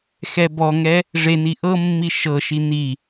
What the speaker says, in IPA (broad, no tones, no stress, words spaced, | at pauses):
xɛbɔŋɛ | ʐeni ʔɤmːi ʃɤʃi n̪i